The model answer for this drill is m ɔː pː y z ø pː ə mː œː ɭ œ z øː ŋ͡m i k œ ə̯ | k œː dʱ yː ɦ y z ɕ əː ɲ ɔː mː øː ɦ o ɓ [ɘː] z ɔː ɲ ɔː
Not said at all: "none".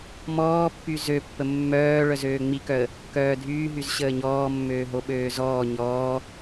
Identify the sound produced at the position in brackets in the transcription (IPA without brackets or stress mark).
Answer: øː